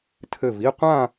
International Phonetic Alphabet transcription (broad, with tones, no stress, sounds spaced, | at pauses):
tʰ ɘ˧˩ v i˥˧ qʷ ã˥˧